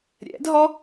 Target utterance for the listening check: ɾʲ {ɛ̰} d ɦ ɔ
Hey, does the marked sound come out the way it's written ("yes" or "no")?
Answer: yes